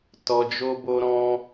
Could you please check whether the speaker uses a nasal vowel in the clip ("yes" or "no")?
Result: yes